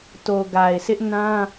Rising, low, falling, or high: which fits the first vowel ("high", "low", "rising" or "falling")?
low